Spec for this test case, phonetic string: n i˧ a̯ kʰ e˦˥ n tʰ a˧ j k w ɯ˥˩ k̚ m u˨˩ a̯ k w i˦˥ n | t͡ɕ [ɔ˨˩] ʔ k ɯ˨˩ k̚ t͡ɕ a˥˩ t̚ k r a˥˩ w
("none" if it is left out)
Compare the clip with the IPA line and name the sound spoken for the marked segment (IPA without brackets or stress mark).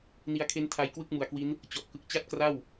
ɔ˨˩